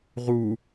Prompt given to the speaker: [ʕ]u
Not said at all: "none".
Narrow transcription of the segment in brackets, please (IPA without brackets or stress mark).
ʁ